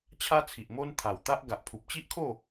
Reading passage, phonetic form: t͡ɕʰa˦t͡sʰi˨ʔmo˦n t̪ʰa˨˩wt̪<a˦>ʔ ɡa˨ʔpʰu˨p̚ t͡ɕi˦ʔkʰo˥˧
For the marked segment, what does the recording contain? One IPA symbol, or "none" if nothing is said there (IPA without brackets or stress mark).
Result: a˦